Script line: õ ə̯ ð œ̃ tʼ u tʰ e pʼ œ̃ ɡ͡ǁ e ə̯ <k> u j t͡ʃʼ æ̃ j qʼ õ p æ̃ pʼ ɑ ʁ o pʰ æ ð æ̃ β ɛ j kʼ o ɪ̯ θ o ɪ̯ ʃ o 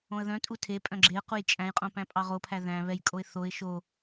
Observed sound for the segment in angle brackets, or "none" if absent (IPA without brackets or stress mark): q